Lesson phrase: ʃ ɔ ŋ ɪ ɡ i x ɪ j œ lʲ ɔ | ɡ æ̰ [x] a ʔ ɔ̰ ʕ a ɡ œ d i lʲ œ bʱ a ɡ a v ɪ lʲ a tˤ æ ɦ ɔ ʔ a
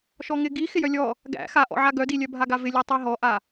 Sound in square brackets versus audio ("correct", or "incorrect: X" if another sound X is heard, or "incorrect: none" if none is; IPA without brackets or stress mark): correct